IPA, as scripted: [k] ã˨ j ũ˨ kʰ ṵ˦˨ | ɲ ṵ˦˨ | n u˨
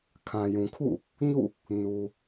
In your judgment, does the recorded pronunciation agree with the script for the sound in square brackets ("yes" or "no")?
no